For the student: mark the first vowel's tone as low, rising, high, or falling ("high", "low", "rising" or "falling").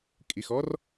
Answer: low